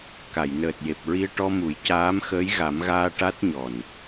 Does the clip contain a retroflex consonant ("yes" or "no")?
yes